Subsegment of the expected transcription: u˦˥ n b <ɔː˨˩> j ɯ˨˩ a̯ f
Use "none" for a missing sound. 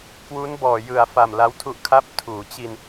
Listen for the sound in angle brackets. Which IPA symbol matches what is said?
ɔː˨˩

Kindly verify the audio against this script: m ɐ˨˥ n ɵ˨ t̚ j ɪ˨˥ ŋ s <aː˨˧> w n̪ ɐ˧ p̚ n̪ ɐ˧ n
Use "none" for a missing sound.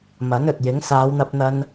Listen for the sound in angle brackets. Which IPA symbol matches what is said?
aː˨˧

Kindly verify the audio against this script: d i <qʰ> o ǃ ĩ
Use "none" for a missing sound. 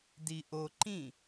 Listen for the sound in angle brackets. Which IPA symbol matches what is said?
ʔ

